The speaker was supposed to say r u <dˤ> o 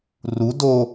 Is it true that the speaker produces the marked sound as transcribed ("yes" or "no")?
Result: no